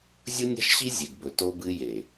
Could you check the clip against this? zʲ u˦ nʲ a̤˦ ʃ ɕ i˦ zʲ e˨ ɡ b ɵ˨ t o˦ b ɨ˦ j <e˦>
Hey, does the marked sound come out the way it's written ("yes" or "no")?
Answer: no